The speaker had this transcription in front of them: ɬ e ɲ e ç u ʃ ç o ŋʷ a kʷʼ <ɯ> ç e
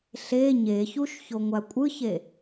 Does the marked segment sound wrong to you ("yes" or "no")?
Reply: no